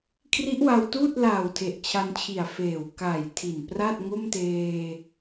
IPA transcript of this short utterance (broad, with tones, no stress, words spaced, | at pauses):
kʰri˦˥ʔwa˧wtuː˥˩t̚laː˨˩w tʰe˨˩ʔt͡ɕʰa˧nt͡ɕʰi˨˩a̯ feː˨˩w ka˨˩j tʰi˨˩npra˥˩t̚ ŋo˥˩mteː˧